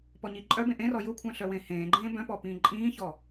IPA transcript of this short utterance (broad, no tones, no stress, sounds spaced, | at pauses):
p ɔ ɲ i ǃʼ œ b ẽ ʔ ẽ r ɔ j ʊ kʷʰ œ̃ ɬ œ w ẽ h ẽː ɡ͡ǃ ẽː b œ̃ p ɔ p ĩː ǃʼ ĩː ç ɔ